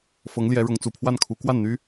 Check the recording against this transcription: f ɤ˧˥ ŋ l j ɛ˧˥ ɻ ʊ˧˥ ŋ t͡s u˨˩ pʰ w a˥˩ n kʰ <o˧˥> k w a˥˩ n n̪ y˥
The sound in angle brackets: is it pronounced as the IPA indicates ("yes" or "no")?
no